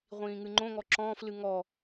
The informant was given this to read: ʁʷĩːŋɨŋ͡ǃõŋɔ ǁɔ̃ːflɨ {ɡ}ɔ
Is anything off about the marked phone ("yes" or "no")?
yes